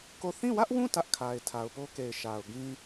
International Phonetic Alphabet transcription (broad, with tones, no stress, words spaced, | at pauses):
ko˦˨ θĩ˦˨wä˦ʔwũ˦˨ tä˦ʔkʰa˨ɪ̯ tʰa˨ʊ̯po˦ke˨ɪ̯ ʃa˨ʊ̯ɡĩ˦